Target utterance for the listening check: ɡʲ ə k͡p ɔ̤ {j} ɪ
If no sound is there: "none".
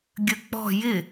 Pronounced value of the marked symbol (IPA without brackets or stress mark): j